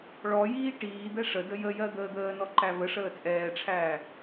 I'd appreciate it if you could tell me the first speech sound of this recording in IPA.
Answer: ɭ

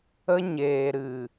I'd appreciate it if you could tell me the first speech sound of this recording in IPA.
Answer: ə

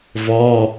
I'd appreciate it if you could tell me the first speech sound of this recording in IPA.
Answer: v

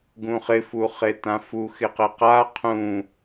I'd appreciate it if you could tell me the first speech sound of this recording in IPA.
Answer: ɡ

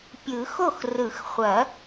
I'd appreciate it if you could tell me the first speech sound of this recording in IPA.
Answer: pʲ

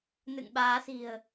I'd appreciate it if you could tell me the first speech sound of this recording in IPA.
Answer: n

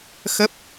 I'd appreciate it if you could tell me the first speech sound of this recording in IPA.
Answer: x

